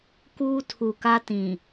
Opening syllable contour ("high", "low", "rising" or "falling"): high